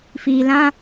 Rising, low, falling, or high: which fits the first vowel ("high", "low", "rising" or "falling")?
low